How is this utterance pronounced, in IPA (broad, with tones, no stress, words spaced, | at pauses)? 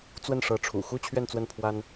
t͡swə˥˩nʂɤ˧˥ ʈ͡ʂʰṵ˨˩xu˥ t͡ɕʰɥɛ˥˧nt͡swə˥˩npʰwa˥n